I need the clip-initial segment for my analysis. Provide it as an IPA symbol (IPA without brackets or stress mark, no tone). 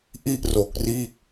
ʔ